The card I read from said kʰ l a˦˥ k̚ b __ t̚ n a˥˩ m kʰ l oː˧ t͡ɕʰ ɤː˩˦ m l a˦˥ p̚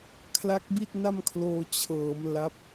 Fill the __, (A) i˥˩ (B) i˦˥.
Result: A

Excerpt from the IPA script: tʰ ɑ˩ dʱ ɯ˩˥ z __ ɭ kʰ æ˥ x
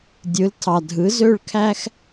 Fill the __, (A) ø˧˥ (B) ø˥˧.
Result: B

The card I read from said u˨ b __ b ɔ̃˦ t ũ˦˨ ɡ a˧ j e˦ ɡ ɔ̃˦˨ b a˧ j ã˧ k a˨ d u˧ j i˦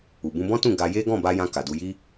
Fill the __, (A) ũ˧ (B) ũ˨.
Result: A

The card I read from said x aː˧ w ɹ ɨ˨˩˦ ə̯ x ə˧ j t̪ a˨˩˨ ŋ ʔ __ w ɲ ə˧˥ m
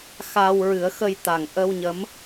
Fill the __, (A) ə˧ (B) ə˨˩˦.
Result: A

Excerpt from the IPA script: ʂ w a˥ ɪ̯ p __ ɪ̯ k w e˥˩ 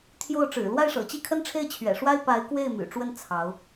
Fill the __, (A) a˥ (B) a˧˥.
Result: B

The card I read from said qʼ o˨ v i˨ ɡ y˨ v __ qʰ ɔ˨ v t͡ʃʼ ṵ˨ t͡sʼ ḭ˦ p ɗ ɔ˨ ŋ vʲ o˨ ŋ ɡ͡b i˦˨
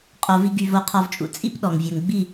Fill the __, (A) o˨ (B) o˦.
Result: A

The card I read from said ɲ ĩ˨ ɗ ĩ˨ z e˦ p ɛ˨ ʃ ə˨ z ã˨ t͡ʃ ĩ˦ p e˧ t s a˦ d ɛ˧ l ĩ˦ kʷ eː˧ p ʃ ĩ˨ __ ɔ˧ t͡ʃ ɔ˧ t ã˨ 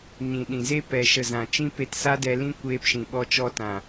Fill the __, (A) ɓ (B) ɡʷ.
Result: A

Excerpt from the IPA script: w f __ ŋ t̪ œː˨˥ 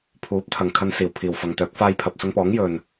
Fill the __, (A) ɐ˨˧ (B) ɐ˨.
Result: B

